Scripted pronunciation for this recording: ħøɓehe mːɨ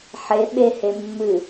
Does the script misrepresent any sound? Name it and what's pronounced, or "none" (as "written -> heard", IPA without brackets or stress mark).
ø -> e